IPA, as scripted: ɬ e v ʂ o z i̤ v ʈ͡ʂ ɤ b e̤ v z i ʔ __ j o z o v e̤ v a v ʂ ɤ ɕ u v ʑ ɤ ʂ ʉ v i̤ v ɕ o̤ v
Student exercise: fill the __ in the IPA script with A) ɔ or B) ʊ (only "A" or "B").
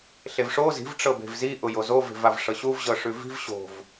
B